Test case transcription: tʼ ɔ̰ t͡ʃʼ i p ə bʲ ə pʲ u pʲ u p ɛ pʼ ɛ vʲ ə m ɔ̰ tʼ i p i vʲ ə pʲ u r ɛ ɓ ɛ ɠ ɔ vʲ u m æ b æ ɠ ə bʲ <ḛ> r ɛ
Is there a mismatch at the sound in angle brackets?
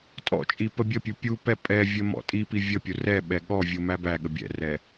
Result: yes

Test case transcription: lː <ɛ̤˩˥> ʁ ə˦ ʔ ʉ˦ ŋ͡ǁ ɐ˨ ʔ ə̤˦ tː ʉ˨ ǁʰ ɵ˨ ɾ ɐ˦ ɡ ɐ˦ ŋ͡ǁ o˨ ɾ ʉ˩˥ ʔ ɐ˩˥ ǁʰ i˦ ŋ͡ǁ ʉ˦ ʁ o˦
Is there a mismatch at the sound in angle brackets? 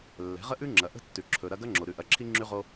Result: no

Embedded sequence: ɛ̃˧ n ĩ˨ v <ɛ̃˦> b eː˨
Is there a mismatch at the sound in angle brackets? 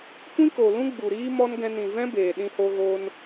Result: no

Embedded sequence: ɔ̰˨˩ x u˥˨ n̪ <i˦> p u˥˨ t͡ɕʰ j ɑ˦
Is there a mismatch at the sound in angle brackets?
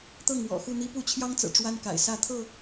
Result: no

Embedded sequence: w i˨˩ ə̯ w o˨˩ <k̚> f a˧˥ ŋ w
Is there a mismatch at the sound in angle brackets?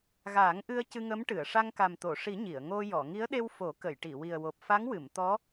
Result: yes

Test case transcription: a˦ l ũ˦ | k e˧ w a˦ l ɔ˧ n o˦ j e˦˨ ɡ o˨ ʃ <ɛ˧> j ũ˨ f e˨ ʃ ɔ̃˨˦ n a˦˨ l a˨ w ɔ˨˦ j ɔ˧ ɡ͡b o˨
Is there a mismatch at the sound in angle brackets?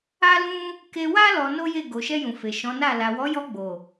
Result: no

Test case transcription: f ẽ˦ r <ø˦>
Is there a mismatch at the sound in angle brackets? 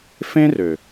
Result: yes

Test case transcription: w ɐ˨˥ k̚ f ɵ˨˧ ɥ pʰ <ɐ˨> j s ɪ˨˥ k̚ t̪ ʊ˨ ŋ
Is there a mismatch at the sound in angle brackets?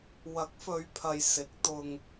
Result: no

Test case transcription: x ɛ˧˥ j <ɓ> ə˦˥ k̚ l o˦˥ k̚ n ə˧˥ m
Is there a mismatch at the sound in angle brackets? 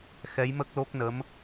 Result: yes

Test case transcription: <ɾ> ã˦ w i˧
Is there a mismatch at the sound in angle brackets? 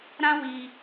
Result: no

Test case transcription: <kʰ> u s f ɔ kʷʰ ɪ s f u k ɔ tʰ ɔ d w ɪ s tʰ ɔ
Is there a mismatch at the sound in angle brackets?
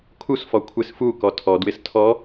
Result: no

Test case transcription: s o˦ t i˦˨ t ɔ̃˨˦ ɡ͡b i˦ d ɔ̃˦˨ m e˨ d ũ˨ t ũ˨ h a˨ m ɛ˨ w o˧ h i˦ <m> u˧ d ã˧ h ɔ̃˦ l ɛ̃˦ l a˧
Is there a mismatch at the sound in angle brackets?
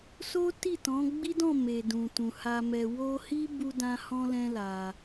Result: yes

